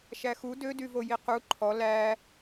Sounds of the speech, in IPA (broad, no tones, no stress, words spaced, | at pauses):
ʃæxu dødyvo jiqu ǃʰɔ læ